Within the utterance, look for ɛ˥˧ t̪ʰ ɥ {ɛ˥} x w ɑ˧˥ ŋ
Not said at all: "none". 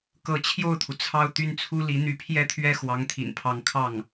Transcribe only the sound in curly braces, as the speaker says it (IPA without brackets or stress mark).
ɛ˥˩